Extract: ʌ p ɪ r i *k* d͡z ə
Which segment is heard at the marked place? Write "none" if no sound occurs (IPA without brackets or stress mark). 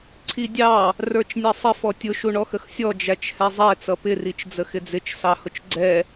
t͡ʃ